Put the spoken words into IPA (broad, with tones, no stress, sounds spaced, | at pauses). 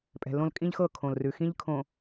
pʼ ɛ̤˨ l õ˦ l kʼ ĩ˦ ʎ x ɤ˦˨ kʰ õ˨ l r ʉ˨ x ĩ˦ ʎ kʰ õ˨